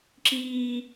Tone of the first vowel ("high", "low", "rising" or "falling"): high